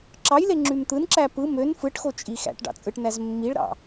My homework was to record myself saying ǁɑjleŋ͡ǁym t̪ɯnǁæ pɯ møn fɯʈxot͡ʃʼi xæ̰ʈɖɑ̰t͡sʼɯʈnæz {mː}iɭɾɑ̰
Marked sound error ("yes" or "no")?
no